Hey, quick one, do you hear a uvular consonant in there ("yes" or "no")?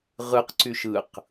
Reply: yes